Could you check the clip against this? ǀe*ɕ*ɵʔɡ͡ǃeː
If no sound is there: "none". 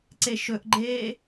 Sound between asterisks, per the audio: ʃ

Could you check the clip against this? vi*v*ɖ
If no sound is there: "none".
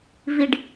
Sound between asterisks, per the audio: none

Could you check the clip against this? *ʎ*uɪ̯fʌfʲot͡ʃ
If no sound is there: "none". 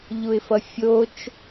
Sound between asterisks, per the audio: ʎ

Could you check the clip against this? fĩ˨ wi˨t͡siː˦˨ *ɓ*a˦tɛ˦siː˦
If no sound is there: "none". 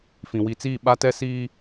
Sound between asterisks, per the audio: ɓ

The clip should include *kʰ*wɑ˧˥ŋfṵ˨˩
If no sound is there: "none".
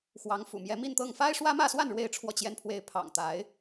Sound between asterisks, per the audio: x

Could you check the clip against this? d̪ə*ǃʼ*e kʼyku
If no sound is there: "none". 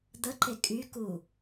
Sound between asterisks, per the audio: ǃ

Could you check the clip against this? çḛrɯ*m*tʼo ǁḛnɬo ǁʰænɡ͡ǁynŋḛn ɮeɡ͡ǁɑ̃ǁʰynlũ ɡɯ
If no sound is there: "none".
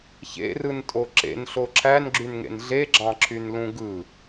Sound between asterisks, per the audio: n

